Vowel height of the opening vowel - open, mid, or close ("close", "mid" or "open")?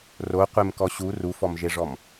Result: mid